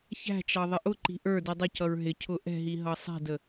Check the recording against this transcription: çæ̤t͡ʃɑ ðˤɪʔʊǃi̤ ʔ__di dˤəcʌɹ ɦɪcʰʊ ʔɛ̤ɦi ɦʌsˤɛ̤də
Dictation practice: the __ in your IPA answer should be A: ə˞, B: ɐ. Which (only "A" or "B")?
A